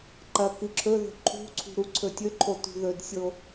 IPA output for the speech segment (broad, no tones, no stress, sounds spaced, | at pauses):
ǃ ɐ k ɨ ǁʰ ɵ ð o̤ ǃʰ ṳ ǀʰ ṳ ɾ u ǀʰ ɵ tʲ ɵ ǃʰ o t ṳ ð ɵ d sʲ o